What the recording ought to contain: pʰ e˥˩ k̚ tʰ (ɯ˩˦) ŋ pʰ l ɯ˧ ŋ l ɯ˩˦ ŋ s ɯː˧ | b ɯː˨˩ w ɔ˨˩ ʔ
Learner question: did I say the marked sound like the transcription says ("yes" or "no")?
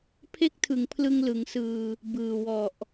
yes